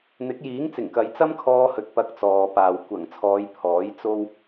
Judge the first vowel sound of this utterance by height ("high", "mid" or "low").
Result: high